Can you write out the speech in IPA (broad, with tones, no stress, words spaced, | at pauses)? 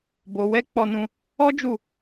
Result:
bo˧wɛ˦ k͡pɔ˦nũ˦ | ɔ˦d͡ʒu˦˨